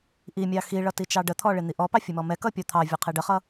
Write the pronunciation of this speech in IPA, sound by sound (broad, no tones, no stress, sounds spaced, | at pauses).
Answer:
ʔ i mʲ ɑ x i ɭ ʌ t i t͡ʃ ɑ ɖ ə t̪ʰ ɔ ɭ ɪ n̪ i ʔ ɔ p ɑ fʲ ə m ɔ m ɛ k ʌ pʲ ɔ t̪ʰ ɑ vʲ ɔ qʰ i ɖ ə χ ʌ